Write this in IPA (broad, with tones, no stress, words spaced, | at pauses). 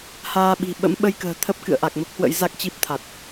haː˧ɓi̤˨˩ ɓə̰˧˥mɓə˧jkə̤ː˨˩ t̪ʰə˦˥p̚ kɨ̰˧˨ə̯ʔa˨˩k̚mə˦˥p̚hwə̰˧˥j za˦˥k̚t͡ɕi˦˥p̚t̪ʰa˨˩t̚